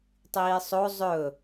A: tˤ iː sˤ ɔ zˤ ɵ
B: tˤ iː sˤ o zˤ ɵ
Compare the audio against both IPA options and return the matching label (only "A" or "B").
B